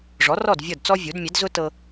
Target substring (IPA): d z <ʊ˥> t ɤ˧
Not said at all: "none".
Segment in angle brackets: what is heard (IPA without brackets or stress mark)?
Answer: ʊ˥